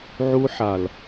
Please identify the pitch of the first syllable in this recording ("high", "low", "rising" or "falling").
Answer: high